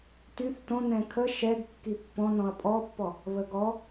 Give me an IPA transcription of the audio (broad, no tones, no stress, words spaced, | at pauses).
tyθ tõ nɛ̃kʰə ʃɛɡ kːipːɔ̃nɔ̃ɐ̯ pʼɔpːɔ | βəɡɔ